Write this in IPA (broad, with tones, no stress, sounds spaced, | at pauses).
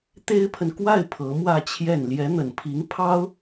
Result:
t̪ e˥ ɪ̯ pʰ ə˨ n k w a˥˩ ɪ̯ pʰ ɤ˧˥ m w ä˥˧ t͡ɕʰ j ɛ˥˩ n l j ɛ˧˥ n̪ ə˨˩ n pʰ i˧˥ ŋ pʰ ɑ˥ ʊ̯